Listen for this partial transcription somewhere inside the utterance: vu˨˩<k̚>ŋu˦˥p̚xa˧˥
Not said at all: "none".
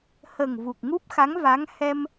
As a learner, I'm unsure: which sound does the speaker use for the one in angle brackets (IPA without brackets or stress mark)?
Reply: k̚